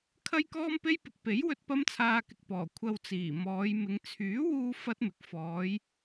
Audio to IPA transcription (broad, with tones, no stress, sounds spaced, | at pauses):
kʰ ɐ˥ j k ɔː˥ m p e˥ j p ɪ˨ k̚ p e˨˥ j w ɵ˧ t̚ p ɐ˥ m t͡sʰ aː˧ k ɪ˨ k̚ p ɔː˨˩ kʷʰ ɐ˧ w t͡s iː˨˩ m ɔː˨˧ j m ɪ˨˧ ŋ t͡sʰ yː˨˥ w uː˧ f ɐ˥ t̚ m ɪ˨ k̚ f ɔː˨˧ j